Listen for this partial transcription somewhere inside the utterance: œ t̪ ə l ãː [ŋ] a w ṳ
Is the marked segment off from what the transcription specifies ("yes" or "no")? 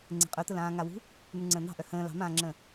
no